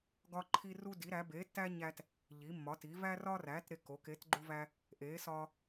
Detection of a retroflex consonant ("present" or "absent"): absent